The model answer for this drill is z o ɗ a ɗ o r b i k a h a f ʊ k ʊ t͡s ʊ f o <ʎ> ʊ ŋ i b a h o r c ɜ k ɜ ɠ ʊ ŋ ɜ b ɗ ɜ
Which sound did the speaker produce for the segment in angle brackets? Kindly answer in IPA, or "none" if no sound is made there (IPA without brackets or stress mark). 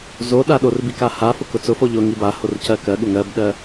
ʎ